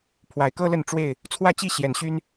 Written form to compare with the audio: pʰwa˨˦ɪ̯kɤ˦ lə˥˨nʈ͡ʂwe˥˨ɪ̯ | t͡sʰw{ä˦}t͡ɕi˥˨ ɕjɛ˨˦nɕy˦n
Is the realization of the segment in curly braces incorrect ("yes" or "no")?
yes